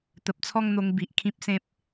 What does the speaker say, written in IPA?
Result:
t̪ ə˨ p̚ t͡sʰ ɔ˥˧ ŋ n̪ o˧ ŋ b i˨ ʔ kʰ ĩ˦ p̚ s ẽ˦ p̚

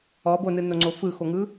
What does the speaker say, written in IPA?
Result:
ɔ b o n ɯ n o ŋ͡ǀ o f ɯ x o ŋ ɯ

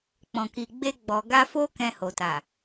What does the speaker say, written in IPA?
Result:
k͡p ɔ̃˨ k i˨ ɡ͡b e˧ ɡ͡b ɔ˨ ɡ a˧ f o˦ k ɛ̃˧ h o˨ t a˨

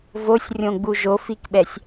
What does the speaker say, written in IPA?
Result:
v o sʲ rʲ õ ɡ͡b u ʒ o f i k ɓ ɛ sʲ

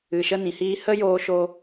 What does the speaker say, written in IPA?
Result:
ɨ˨ ʃ ə˦ n ĩ˨ h iː˦ h ə˦ j oː˧ ʃ o˧

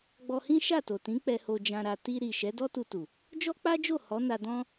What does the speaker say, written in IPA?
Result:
ɡ͡b ɔ˧ h ĩ˦ ʃ a˦˨ t o˨ t ĩ˨˦ k͡p ɛ˧ h o˧ d͡ʒ ã˧ ɾ a˧ t i˧ ɾ i˨ ʃ ɛ˨˦ d ɔ˦ t u˧ t u˨ | d͡ʒ ɔ˦ k͡p a˦ d͡ʒ o˦˨ h ɔ˨˦ n a˧ d ɔ̃˦

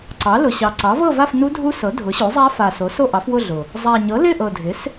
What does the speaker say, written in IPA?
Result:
ǀ ɑ˩˥ l ʊ˨˩ ɕ ɑ˨˩ ǀ ɑ˩˥ v ɤ˥˨ v a˥˨ f n u˦˥ dʱ u˦˥ s ɤ˩˥ dʱ ʊ˩˥ ɕ o˩˥ zˤ a˦˥ f a˨˩ s o˩˥ s o˥˨ ʔ ɑ˩˥ f w ʊ˥˨ ɮ ʊ˨˩ | zˤ a˨˩ ɲ ɤ˩˥ l ɪ˥˨ ʔ ɤ˨˩ dʱ ɪ˩˥ s

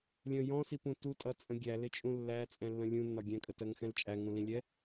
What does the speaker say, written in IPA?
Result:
lʲ ə̃ j ɔ̃ s i p ũ t u tʼ ʌ t͡sʼ ə̃ ɡʲ æ l ɪ t͡ʃʼ ũ lː æ t͡sʼ ɛ̃ lː ə̃ lʲ ũ nː ɒ ɡʲ ɛ̃ kʼ ə t ɜ ŋ x ɛ̃ l t͡ʃʼ æ ŋ ũ l ĩ lʲ ɛ

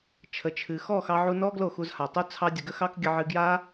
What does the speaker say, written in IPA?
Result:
t͡ʃʰ ə˨ t͡ʃʰ ɨ˨ x ɔ˦˨ x ɑ˧ ʕ u˧ n ɔ˦ ɡ l o˦˨ x u˧ z h a˨ tˤ u˦ t͡sʰ ɑ˧ dʲ ə˨ ɡ ə˦ x ɑ˦ k ɡʲ ə˧ ʕ ɨ˧ ɡ j a˦

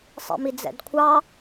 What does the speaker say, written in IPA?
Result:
sˤ ḭ m i d͡z ɛ̰ d kʷʰ ɑ

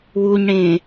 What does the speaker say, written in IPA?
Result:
w u ɲ ɽ ẽː

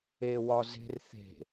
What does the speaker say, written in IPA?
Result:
e w ɒ z e̤ r θ e̤

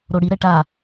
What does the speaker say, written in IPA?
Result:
ɾ o ɽ i ɾ ɛ ʈ a

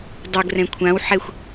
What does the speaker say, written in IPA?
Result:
dˤ ə ɡ r ɛ̃ kʷʰ ã w ħ ɛ xʷ

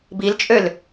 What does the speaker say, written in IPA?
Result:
b i l t͡ʃʼ ø l

